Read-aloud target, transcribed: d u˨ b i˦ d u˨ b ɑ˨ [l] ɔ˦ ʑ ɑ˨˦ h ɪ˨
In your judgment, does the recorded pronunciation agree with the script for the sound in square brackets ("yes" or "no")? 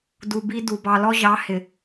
yes